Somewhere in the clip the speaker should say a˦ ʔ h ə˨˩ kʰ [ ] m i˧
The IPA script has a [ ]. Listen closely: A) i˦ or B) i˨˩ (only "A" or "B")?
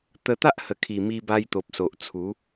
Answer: B